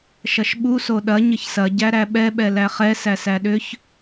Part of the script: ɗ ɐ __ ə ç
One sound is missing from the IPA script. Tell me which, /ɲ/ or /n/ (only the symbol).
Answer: ɲ